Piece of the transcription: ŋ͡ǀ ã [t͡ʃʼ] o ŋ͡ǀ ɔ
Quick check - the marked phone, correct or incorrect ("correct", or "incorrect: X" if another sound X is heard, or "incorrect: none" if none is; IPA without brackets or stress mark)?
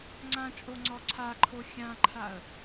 correct